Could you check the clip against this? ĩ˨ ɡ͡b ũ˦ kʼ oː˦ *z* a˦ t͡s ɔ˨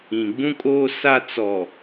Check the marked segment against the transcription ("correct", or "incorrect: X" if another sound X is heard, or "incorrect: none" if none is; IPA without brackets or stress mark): incorrect: s